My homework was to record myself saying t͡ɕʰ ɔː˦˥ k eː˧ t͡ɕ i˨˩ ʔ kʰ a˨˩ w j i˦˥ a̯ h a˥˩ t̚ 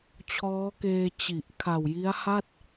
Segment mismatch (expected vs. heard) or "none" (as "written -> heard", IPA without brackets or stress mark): none